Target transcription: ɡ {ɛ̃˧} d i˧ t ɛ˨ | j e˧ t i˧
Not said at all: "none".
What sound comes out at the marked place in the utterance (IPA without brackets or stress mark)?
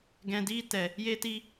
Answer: ɛ̃˨